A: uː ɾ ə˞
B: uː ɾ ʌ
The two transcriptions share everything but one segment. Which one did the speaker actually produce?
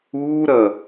B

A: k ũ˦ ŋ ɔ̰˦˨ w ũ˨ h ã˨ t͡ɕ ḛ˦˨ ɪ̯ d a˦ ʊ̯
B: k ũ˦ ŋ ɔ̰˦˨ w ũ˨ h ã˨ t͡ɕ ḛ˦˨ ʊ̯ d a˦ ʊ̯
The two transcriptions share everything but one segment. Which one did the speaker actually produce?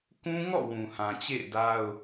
A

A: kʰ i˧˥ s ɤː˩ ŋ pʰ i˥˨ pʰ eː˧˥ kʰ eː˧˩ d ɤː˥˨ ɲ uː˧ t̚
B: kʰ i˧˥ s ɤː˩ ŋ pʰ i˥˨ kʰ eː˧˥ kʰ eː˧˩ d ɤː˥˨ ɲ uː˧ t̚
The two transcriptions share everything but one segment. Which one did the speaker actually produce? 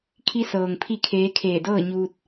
B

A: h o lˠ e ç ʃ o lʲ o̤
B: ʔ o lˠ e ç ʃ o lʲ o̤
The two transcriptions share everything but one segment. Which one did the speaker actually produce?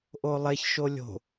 B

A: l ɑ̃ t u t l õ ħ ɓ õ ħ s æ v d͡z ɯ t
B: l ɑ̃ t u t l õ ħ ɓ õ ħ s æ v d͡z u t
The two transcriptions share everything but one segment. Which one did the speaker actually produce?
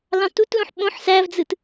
A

